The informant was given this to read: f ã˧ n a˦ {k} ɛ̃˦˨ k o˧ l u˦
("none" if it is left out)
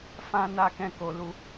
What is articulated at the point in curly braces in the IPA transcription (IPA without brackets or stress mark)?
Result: k